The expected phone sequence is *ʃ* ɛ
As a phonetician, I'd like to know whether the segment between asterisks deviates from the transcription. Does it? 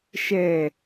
no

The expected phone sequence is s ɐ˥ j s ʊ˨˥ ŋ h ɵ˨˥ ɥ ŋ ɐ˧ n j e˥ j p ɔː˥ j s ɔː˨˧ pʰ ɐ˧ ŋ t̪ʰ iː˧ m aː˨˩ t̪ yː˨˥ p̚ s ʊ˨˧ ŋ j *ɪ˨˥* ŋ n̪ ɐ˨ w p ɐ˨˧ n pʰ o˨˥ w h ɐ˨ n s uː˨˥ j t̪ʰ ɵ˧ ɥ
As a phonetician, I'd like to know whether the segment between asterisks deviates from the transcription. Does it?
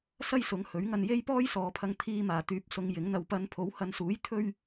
no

